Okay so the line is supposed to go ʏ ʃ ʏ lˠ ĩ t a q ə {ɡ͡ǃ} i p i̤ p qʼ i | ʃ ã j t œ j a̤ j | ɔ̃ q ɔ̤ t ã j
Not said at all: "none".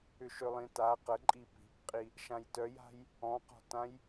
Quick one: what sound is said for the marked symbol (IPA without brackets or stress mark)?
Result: ǃʼ